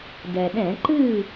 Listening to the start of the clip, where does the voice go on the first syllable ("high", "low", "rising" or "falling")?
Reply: low